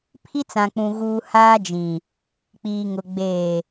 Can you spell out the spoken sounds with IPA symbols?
pʰi˦t͡sã˨k͡pũ˨ ɣuː˨ haː˦d͡ʒĩ˨ | k͡piː˨ŋʊ˨ ɡ͡beː˨

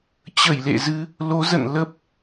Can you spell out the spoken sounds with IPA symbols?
t͡ɕə˧˩jlḛ˧˨zɨ˨˦ | lo˨˦zə̰˧˨n lə˦˥p̚

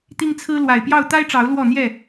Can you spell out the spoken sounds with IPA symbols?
t̪i˦ŋt͡sʰɹ̩˦ lwa˨˩ɪ̯pjɑ˥˨ʊ̯ t̪a˦ɪ̯ʈ͡ʂɑ˨˦ʊ̯ lwɔ˥˨n̪jɛ˥˨

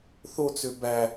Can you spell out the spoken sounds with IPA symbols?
θot͡sø bæ

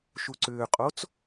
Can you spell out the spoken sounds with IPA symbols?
ʃuǀʏːqʼot͡s

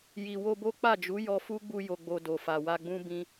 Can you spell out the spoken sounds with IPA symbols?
ji˨ wo˧bo˦ k͡pa˦˨d͡ʒu˨˦ jɔ˧fu˦ɡ͡bu˧ jo˧ɡ͡bo˧do˨ fa˨wa˧ɡ͡bũ˦ bĩ˧

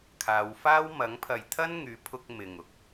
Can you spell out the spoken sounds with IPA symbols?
kʰaː˨˧wfaː˥w mɐ˨˥ŋpʰɐ˨j t̪ʰɐ˥nŋyː˨˥pʰʊ˧k̚ mɪ˨ŋ ʊ˥k̚

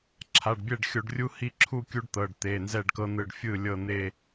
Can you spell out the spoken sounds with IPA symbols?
ǁʰa˩˧˩ɖbʲɛ˥˩ɖxʲo˧˩˧ɖ rʲu˦ hi˥˩ǁʰu˥˩kʲu˦ɖ t̪ɤ˩˧˩ɖt̪e˩˧˩ nzɛ˥˩ɖkɤ˦n̪ɯ˧˩ɖfʲɯ˥˩ lʲɤ˧˩n̪e˧˩

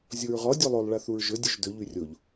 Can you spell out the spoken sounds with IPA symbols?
zʲoɹʁɔ dʲulˠolˠ ɭaθuɹʒɵ dʲɵʒdɵ ʎyrʲoʎ

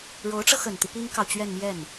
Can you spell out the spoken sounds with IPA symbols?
ɻo˧˥ʊ̯ʈ͡ʂɤ˧xə˨˩nt̪i˦ pi˥ŋkɑ˨ʊ̯ t͡ɕɥɛ˥˧n mjɛ˥˩n

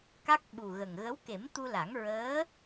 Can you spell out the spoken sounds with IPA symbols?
ka˦˥k̚ɓu˨˩ɣə˨˩ŋ ɣə˧˥wke˨˩˦m t̪u˧la˨˩˦ŋɹəː˧˥

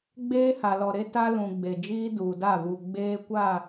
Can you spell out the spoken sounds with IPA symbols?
ɡ͡beː˦ha˨lɔ˨ɾe˦ ta˦lũ˨ ɡ͡be˨d͡ʒiː˦ duː˨da˦˨vu˨ ɡ͡beː˦ kʷa˦˨

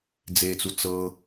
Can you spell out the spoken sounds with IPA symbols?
d͡zet͡su t͡sɤ

